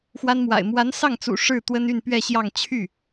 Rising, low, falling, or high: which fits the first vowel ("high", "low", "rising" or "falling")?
high